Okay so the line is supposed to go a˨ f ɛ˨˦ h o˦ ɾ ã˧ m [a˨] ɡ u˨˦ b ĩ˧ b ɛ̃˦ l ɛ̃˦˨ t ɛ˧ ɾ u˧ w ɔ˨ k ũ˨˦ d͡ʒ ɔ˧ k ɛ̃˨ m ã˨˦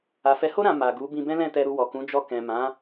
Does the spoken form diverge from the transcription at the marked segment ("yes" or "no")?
no